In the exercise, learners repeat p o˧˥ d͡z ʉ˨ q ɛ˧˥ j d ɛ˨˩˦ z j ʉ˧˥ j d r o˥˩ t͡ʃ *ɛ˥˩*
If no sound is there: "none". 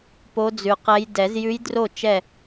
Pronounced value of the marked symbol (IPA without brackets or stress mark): ɛ˥˩